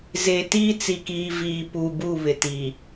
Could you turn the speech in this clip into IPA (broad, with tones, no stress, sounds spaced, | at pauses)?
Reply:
z e˨ t iː˦ t͡s i˨ k iː˨ v iː˨ p uː˨ b u˦˨ β ɪ˨ t i˨